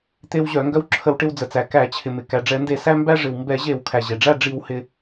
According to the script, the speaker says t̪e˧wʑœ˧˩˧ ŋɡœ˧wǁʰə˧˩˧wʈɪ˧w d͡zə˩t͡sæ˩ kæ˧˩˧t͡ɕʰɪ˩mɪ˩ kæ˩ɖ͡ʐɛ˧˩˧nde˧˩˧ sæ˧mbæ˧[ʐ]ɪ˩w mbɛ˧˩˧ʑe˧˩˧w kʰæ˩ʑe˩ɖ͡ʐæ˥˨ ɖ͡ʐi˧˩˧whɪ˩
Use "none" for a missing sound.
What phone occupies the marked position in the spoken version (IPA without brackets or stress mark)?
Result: ʐ